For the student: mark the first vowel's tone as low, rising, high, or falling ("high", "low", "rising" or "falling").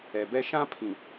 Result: low